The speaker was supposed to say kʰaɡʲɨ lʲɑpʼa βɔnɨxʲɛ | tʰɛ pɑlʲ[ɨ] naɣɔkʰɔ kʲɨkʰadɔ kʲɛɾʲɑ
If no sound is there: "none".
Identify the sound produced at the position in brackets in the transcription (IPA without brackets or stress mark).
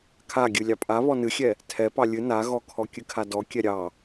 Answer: ɨ